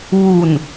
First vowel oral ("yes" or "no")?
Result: yes